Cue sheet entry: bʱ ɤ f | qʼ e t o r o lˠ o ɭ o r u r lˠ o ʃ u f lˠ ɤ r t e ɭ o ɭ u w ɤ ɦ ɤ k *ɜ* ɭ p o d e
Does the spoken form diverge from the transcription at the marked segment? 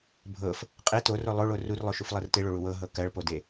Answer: no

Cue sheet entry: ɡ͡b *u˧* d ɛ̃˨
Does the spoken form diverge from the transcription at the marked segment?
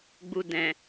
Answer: no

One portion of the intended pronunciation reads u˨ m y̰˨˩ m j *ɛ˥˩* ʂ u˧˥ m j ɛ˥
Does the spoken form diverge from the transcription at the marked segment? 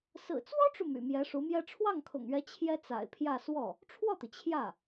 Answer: yes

